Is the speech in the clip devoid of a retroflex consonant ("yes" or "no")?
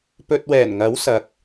yes